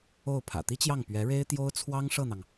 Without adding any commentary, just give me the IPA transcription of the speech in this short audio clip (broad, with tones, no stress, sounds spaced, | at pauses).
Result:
o˥˩ ʊ̯ pʰ ä̰˨˩ t̪ i˥ t͡ɕ j ɑ˥˩ ŋ p ɥ ɛ˧˥ ɻ e˥ ɪ̯ t̪ j o˥ ʊ̯ t͡sʰ w ɑ˥ ŋ ʂ ɤ˥˩ n̪ ɑ˩ ŋ